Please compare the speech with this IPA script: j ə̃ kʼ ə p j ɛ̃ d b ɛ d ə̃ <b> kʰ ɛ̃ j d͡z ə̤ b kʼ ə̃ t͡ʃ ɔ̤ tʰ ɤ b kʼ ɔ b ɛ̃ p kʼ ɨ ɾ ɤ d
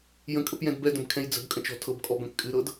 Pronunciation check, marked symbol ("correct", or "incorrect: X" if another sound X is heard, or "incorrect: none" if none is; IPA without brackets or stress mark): correct